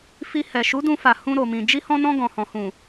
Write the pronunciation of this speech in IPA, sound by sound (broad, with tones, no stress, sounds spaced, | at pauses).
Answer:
f i˧ h ɛ˨ ʃ u˨˦ d ũ˧ f a˨ h ũ˧ ɾ o˨ m ĩ˨ d͡ʒ i˧ h ɔ̃˧ n ɔ̃˧ ɡ ɔ̃˨ h ɔ̃˨ h ũ˨